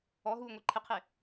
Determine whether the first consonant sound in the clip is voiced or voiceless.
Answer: voiced